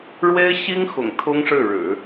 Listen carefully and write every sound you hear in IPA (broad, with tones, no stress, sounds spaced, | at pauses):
ɻ w e˥ ɪ̯ ɕ i˥ ŋ x ʊ̰˨˩ ŋ t̪ʰ ʊ˥ ŋ ʂ ɻ̩˥˩ ɻ ɻ̩˨˩˦